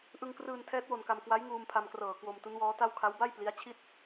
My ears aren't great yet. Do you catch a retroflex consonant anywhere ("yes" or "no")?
no